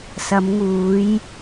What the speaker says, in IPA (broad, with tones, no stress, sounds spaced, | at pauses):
s ɐ˨˧ m ŋ uː˨˧ j